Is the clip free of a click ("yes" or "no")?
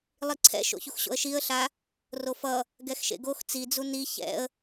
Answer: no